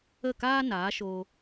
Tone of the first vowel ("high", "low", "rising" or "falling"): falling